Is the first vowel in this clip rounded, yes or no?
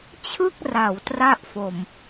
no